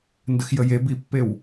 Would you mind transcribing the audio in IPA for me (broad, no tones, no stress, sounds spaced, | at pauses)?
n d ə x j ə j e b i pː e w